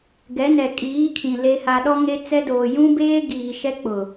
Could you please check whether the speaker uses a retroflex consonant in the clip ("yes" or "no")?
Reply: no